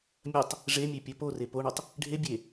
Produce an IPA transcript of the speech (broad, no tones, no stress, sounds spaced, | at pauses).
mʲ ɐ tˤ | ʐ e mʲ e pʲ ɐ p o r e p o ɳ ɵ tˤ | ɖʱ e bʲ e